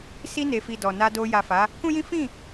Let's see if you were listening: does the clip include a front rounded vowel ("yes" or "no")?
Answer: no